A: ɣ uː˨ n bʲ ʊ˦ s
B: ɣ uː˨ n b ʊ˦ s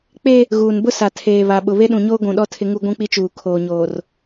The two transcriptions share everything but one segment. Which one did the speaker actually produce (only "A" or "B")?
B